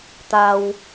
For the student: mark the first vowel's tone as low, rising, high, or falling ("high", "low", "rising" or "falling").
low